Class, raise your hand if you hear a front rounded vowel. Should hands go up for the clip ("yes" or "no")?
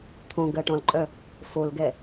yes